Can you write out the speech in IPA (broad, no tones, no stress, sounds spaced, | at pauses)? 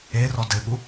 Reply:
e r ɔ d ɘ ɠ u